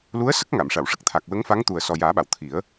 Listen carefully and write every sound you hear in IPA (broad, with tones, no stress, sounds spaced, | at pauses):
l u˧˥ ə̯ s ə˦˥ k̚ ŋ a˨˩˨ m ʂ a˨˩˨ w ʂ ə˦˥ k̚ t̪ʰ a˨˩ k̚ w ə˧˥ ŋ f a˧˥ ŋ t̪ u˨˩ ə̯ s ɔ˨˩ j aː˨˩˦ ɓ a˨˩˨ w t̪ʰ i˨˩˦ ə̯